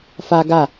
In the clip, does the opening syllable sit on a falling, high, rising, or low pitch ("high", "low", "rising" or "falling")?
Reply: high